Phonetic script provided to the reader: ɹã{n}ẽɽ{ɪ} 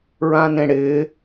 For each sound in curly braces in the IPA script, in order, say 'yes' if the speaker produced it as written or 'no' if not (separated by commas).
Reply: yes, no